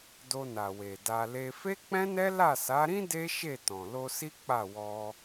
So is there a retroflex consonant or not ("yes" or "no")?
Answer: no